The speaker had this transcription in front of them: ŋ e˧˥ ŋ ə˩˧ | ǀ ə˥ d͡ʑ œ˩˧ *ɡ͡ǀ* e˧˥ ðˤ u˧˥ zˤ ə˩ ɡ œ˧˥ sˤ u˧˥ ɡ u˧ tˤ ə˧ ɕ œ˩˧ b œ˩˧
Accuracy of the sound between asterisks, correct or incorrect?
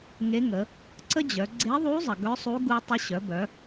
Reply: correct